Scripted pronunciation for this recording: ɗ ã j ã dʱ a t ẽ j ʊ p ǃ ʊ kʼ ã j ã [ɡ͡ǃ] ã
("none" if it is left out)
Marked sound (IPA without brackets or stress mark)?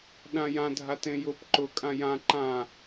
ǃ